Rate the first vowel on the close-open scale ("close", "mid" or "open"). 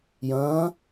open